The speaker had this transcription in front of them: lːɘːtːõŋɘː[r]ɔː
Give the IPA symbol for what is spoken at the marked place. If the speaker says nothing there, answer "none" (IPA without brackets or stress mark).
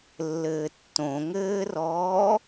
r